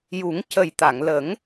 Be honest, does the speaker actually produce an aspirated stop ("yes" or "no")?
no